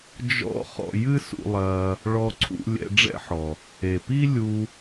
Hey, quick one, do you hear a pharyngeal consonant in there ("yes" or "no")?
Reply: yes